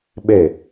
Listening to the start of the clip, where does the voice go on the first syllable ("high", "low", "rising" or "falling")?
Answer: falling